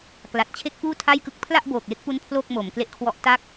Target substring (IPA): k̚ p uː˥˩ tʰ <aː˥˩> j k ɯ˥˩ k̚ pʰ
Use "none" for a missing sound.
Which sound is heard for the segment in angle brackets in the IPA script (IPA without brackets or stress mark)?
a˥˩